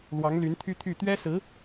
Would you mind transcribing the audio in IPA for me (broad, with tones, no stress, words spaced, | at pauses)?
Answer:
lwɑ˧˥ŋly˧˥nt̪ʰy˥t̪ʰy˥˩ t̪ɥɛ˥sɹ̩˧˥